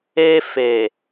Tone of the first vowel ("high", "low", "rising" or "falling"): high